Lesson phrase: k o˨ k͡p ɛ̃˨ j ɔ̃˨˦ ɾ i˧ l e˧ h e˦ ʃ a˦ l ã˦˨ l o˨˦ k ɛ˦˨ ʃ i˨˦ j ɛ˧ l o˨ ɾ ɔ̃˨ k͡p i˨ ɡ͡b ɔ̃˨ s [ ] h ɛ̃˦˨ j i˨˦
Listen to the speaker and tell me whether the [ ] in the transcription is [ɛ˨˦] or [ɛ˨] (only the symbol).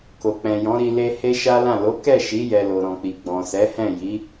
ɛ˨˦